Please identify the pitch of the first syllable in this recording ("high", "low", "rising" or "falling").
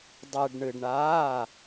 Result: low